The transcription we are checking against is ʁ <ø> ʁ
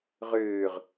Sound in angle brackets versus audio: incorrect: øː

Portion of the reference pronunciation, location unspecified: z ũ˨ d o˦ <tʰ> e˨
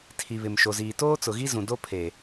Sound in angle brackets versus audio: incorrect: pʰ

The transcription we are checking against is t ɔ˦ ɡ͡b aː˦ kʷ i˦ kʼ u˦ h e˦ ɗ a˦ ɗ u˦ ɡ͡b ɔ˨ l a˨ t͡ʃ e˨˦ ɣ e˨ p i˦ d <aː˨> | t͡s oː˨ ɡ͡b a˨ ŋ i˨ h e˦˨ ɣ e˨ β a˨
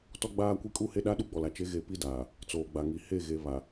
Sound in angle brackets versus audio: correct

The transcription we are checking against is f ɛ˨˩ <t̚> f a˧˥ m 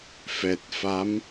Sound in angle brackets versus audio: correct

